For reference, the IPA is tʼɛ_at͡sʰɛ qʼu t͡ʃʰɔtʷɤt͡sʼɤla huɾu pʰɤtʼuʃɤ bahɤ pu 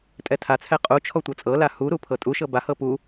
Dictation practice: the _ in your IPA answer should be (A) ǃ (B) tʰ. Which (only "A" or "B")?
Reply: B